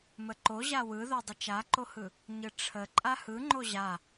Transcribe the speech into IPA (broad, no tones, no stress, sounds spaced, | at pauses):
m ə ǃ o ʑ a w ɯ ð o dˤ ə t͡ʃ a ǃ o h ɯ | ɲ ɯ ʈ͡ʂʰ ə ǃʼ a h ɯ ŋ͡ǃ o ʑ a